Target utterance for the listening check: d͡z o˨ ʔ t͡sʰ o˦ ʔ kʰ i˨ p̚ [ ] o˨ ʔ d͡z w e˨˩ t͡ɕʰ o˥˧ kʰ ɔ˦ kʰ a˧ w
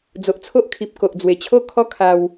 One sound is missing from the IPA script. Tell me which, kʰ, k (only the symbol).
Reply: k